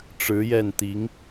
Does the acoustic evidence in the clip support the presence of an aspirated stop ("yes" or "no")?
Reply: no